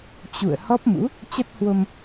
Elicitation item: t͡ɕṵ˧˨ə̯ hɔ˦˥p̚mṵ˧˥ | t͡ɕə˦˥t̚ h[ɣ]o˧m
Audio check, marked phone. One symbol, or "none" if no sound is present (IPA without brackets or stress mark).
w